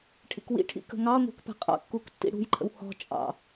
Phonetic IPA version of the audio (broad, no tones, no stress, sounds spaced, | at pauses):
ʈʰ ḭ k w ḭ ʈʰ ḭ k ə̤ ŋ ɑ ŋʷ ɛ̤ k p ɛ̤ qʼ ɑ̰ kː u k tː ḭ ɽ ṳ j ǃʰ ə̰ w h ɔ̤ t͡ʃʼ ɑ̰